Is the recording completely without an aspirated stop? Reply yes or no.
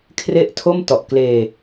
no